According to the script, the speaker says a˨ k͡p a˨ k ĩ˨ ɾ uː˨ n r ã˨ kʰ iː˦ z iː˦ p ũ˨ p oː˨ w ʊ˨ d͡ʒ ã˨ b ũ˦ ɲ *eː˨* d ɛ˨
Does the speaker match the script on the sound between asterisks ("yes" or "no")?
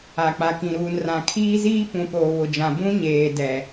yes